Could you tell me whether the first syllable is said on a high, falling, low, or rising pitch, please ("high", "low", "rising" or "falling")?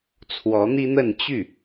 rising